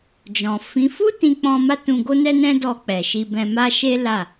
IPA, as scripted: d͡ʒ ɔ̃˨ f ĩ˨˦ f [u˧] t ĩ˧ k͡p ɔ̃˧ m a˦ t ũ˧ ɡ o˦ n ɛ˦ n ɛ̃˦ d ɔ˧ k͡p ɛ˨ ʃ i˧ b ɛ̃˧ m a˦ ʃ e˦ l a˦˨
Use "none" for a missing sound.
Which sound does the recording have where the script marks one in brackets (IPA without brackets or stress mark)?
u˦